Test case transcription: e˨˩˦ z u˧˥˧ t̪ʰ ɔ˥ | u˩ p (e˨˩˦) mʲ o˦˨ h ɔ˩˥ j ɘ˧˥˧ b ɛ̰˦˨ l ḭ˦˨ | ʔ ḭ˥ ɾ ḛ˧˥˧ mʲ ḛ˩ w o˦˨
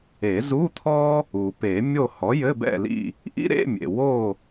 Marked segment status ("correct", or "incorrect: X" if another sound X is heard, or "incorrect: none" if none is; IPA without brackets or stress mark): correct